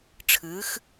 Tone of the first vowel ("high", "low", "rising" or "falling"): rising